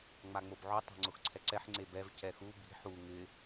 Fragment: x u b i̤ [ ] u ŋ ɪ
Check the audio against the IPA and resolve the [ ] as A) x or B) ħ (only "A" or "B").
B